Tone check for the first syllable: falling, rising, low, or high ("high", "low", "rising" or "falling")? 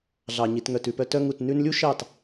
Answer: low